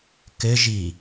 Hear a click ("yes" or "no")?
no